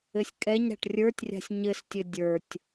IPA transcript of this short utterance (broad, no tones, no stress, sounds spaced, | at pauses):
ɘ sʲ kʼ ɛ ɲ ɾ a̤ ʈ rʲ ə˞ tʲ rʲ a̤ sʲ ɲ ɘ s tʲ ɘ dʲ ə˞ tʲ